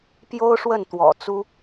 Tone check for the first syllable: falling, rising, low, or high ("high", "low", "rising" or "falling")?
high